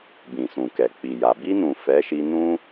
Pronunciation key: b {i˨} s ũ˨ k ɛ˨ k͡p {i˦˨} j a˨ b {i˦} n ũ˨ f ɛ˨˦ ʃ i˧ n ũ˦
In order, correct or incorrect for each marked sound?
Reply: incorrect, incorrect, incorrect

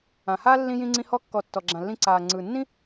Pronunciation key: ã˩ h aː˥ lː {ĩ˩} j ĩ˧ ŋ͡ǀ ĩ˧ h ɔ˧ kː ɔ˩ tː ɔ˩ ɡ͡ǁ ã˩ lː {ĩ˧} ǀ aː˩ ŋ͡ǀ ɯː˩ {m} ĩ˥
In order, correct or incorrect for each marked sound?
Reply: incorrect, correct, incorrect

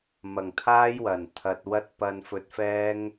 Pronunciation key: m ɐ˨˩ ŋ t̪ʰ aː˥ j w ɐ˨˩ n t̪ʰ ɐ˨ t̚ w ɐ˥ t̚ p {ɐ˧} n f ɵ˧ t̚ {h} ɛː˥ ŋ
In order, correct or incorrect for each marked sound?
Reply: correct, incorrect

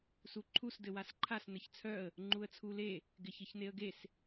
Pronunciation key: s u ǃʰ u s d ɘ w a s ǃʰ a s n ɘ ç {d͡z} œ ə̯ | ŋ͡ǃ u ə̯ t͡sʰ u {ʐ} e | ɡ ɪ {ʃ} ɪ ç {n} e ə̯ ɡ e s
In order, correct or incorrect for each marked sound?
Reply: incorrect, incorrect, incorrect, correct

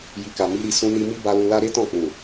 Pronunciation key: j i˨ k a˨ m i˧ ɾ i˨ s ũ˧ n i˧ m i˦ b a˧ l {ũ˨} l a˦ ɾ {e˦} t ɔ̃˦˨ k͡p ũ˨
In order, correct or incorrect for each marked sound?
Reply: incorrect, correct

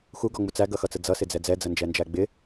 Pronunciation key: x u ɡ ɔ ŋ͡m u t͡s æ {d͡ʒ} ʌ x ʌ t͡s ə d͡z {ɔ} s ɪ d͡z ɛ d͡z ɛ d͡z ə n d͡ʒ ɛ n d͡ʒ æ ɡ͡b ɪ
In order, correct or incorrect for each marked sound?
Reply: incorrect, incorrect

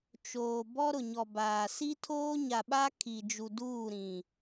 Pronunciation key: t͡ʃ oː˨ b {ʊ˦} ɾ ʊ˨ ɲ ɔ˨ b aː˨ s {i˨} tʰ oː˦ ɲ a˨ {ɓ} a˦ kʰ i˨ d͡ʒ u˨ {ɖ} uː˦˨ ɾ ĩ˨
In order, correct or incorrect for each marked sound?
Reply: incorrect, incorrect, correct, incorrect

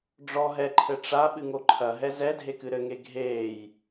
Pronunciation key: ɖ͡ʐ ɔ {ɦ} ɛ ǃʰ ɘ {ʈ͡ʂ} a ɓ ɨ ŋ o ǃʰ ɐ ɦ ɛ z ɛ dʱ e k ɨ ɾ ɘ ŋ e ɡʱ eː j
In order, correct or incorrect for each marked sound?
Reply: correct, correct

